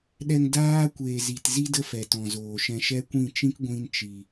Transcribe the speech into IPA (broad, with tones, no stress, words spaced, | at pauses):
ɗɛ˧ŋ daː˦kʷeː˨zi˨tzi˦ də˦fɛ˨ tɔ̃˨zoː˨ ʃɛ̃˧ʃɛ˦kʷĩ˦˨ t͡ʃĩ˦k ɡʷĩ˦nt͡ʃi˨